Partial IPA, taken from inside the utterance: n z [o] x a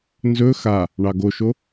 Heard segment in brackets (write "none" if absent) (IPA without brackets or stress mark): ɵ